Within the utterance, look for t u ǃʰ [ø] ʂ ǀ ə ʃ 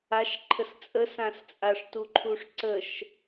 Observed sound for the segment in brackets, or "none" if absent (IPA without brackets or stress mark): u